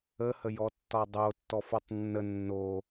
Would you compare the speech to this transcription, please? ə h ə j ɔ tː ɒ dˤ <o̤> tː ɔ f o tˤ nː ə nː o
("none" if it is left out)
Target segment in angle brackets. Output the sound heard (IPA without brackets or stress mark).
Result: o